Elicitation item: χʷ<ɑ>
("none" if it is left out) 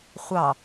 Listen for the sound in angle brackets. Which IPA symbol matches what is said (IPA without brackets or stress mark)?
ɑ